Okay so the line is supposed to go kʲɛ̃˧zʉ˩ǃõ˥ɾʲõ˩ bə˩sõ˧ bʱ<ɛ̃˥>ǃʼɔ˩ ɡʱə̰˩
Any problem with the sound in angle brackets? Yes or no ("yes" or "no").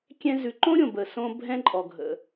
yes